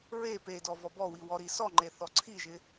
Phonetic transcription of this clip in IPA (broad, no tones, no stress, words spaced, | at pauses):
ɹe pedɔ vɔbɔwi wɔɾisɔŋ͡ǃe θɔǀʰiʒɪ